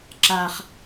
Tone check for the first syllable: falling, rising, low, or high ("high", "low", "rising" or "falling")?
high